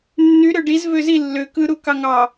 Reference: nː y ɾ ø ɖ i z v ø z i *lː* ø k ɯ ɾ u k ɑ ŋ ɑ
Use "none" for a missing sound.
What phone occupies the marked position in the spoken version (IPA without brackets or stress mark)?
lː